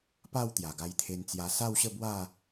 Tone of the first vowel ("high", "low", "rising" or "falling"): falling